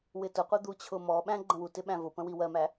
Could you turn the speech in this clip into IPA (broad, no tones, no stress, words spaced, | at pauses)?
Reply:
wɪtʊqʷʌ d̪ut͡ɕʰʊmɔɓæ̃ ɡ͡ǃə̃wutɪ ɓæ̃vʊpə̃ wiwɜmæ